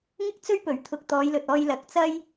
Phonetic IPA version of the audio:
ŋ ɪ˥ k̚ t͡s ɵ˥ ɥ p ɵ˨˩ ɥ t̪ʰ ʊ˧ k̚ t̪ ɔː˨˧ j l ɵ˨ t̚ ɔː˧ j l ɐ˨˥ k̚ t͡s ɐ˥ j

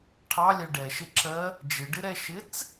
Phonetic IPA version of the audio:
ʈʰ ɑ lʲ æ ɖ ɛ ʃ ɪ ǁ ɜ | d͡ʒ ɪ ɖ ɪ ɾ ɛ ʃ ɪ t͡s

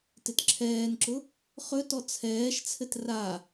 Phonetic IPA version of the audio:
t ɪ t ǁʰ ɛː n ǁ ʊ | χ ɵ t ɔ t͡sʰ ɛː ʃ t͡sʰ ɘ t r a

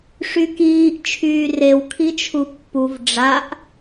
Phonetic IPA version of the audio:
ʂ y k iː ʔ t͡ʃʰ yː r e w kʰ i t͡ʃʰ u pː u v ɖ͡ʐ a ʔ

